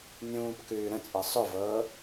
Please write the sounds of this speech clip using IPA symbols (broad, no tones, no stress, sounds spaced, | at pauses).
nʲ ũː p k ʉː ɾ ə̃ t͡sʼ ɤ sˤ ʊ v ɤː